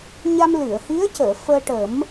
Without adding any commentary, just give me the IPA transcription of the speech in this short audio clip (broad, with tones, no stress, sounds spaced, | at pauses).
ɲ a˧ m l ɨ˨˩˨ ə̯ h i˧˥ ə̯ c əː˨˩˨ f əː˧ ʈ ə˨˩˦ m